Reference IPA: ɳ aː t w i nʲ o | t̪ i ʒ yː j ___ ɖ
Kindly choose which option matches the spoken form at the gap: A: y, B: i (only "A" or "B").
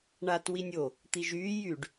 A